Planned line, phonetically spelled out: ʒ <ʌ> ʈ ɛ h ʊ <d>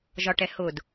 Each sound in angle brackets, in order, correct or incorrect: incorrect: ɒ, correct

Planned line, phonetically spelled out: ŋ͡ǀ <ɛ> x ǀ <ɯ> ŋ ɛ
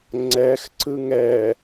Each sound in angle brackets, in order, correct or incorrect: correct, correct

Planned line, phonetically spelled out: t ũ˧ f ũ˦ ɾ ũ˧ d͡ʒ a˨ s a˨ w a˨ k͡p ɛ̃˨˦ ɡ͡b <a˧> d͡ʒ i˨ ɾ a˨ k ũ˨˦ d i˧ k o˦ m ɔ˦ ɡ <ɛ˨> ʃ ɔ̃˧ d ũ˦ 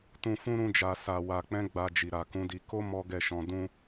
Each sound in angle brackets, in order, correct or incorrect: correct, incorrect: ɛ˦˨

